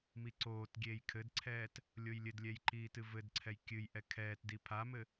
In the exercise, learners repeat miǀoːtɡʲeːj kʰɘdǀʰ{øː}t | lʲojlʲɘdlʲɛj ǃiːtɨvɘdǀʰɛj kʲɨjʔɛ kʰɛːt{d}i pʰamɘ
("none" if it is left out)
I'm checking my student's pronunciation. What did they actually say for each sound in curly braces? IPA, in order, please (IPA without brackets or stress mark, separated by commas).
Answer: ɛː, d